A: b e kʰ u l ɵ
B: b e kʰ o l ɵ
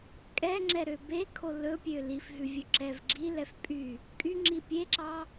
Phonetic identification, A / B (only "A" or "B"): B